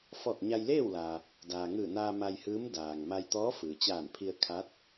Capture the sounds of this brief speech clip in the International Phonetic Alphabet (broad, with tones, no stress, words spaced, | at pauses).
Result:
fɔː˧˩k̚ɲa˧jleː˥˨wlaː˩ | daː˩ŋɯː˧˩naː˧ ma˧jhɯː˧˥m daː˩ŋma˧jt̪ɔː˧˥ fɯː˩t͡ɕaː˧˩npʰi˧ə̯ kʰa˧˥t̚